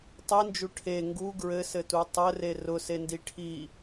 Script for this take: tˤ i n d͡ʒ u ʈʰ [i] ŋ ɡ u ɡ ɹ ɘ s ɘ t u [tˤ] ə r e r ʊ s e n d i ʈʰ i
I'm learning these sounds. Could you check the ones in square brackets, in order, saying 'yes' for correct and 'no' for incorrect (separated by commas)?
no, yes